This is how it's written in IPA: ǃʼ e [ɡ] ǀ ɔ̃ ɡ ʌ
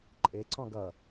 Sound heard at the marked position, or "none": none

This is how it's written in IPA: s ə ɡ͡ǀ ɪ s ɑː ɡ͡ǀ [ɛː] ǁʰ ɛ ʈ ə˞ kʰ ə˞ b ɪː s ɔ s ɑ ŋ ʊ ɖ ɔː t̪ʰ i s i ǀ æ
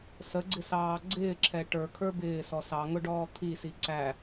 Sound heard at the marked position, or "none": ɪː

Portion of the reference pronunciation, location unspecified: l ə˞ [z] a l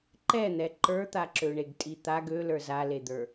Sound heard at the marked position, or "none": z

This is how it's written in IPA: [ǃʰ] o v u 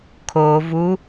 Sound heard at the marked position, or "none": kʰ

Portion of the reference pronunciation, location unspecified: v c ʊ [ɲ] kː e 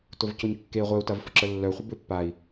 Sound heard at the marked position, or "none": ɲ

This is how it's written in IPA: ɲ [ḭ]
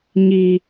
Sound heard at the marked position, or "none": i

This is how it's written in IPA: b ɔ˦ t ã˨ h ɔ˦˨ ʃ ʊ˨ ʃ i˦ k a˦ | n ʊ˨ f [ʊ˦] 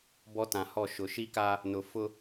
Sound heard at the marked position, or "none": ʊ˦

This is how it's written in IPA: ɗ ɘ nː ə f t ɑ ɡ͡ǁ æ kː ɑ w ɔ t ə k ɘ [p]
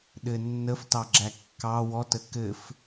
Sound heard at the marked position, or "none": f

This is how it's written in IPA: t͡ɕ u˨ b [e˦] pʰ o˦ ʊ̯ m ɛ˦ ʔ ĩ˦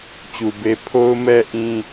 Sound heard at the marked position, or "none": e˦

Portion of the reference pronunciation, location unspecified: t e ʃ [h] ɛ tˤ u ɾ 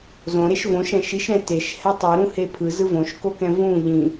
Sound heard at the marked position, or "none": h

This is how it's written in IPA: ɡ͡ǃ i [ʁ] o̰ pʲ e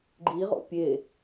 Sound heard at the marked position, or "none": ʁ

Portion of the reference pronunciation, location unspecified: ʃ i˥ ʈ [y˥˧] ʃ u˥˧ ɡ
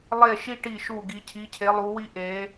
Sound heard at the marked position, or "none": i˥˧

